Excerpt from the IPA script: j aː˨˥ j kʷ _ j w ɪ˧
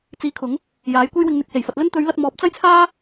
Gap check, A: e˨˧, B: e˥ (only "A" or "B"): B